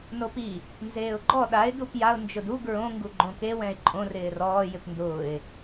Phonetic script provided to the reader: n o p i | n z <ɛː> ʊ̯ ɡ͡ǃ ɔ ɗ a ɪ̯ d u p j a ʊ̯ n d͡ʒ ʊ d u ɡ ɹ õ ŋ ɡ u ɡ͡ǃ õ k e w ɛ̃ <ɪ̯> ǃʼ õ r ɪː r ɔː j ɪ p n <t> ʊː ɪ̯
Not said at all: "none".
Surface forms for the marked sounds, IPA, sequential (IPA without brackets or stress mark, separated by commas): eː, ɪ̯, d